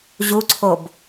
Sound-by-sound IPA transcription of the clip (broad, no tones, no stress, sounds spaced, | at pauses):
ʑ u ǀʰ o b